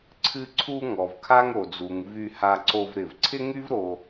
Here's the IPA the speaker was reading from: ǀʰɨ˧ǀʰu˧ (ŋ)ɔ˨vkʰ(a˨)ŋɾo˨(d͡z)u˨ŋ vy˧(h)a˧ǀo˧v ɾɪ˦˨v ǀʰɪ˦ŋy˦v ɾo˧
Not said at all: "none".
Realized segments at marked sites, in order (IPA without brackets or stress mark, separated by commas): ŋ, a˦, d͡z, h